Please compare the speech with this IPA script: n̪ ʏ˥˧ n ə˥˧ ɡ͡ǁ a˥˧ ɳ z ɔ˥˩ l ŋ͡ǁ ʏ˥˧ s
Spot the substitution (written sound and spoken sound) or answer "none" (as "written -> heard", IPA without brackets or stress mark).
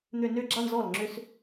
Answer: ə˥˧ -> ʏ˥˧